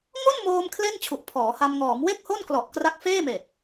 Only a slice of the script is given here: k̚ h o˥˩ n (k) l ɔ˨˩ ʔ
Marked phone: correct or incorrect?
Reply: correct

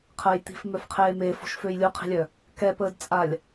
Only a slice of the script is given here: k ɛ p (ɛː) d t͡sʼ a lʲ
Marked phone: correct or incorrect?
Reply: incorrect: əː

